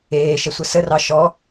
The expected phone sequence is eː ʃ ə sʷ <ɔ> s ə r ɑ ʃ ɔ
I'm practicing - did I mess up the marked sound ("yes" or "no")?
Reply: yes